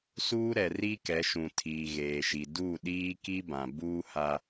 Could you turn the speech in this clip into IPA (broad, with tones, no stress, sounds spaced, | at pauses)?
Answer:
s uː˦ ɾ ɛ˨ r i˦ k ɛ˨˦ ʃ ũ˨ tʰ iː˨ ɣ eː˨ ʃ i˨ d u˦˨ ɗ iː˦ k i˦ b ã˨ b uː˦ h a˦